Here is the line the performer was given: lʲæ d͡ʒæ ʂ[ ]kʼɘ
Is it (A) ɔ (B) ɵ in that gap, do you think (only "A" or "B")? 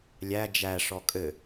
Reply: A